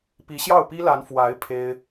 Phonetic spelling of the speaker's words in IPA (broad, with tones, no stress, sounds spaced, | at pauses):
p i˧˥ ɕ j ɑ˥˩ ʊ̯ p i˥ l a˧˥ n f w a˧˥ ɪ̯ pʰ e˥ ɪ̯